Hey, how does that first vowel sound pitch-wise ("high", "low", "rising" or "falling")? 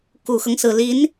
low